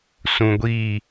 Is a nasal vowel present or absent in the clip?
present